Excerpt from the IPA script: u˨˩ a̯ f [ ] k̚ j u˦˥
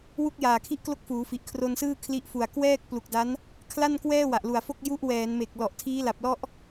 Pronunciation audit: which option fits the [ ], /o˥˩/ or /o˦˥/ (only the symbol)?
o˥˩